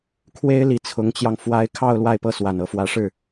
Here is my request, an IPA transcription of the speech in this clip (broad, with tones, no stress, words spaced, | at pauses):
kʰwe˥ɪ̯li˧˥ t͡sʰʊ˧˥ŋt͡ɕjɑ˧ŋ fwa˥ɪ̯ kʰɑ˥˧ʊ̯ lwa˥˧ɪ̯pɤ˥˩swa˨˩n ɤ˧˥fwä˧˥ʂɻ̩˥˩